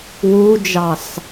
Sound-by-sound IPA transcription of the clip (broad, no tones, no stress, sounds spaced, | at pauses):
w u d͡ʒ ɑ s